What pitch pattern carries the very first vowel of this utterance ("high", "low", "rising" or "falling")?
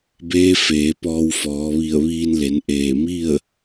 rising